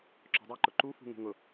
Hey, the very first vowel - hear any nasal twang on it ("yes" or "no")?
no